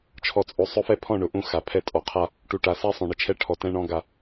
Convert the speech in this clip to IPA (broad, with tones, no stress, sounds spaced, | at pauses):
t͡ʃʰ ɔ˨ t͡sʼ o˨ sˤ ʊ˦ f ɛ˦ pʰ ɔ̃˦˨ ɳ ʊ˨ ʔ ũ˦˨ x a˨ pʰ ɛ˦ tʼ ɔ˨ qʰ a˦ | ʈ u˨ ʈ a˨ s a˦ sˤ õ˨ ɳ ɪ˨ t͡ʃʰ ɛ˦ ʈʰ ɔ˨ t ɛ̃˦ ɳ ɔ̃˦ ɡ a˦